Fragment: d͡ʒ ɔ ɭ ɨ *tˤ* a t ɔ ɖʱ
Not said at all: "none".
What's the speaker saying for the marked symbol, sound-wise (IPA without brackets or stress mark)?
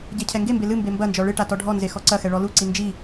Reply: ʈ